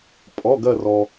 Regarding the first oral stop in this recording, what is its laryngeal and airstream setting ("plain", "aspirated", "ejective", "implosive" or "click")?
ejective